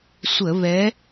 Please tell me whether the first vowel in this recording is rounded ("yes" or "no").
no